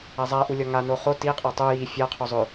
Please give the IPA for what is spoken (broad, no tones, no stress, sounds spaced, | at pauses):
a zˤ a ʔ u lʲ ɒ ŋ a n o χ o t i qʼ a tˤ o j i fʲ a qʰ o zˤ ɵ